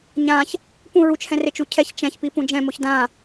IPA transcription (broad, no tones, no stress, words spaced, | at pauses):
ɲãç | pũ ɹut͡ʃhɛ̃ ret͡ʃucʰɛç t͡ʃɛ̃çpi pũd͡ʒɛ̃moç dã